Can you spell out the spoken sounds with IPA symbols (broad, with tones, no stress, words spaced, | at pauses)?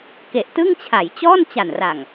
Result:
ke˨˩ʔtɯ˥˩ŋt͡ɕʰa˩˦jt͡ɕɔː˥˩n t͡ɕa˨˩nra˨˩ŋ